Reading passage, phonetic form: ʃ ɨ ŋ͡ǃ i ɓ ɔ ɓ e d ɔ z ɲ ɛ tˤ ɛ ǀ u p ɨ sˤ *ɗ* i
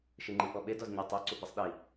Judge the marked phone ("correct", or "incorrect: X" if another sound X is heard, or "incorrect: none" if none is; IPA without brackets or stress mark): correct